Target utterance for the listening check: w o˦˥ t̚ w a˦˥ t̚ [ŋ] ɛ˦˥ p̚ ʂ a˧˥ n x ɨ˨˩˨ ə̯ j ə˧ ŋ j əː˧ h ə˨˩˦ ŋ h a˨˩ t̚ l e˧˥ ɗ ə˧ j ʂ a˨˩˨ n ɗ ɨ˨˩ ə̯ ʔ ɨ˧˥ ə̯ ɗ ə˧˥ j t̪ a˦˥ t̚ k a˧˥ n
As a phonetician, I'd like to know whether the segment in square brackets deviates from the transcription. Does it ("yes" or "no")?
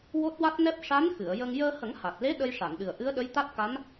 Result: yes